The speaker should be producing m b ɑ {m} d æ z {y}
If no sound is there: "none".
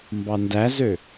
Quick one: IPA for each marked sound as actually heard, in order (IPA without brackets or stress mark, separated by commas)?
n, ø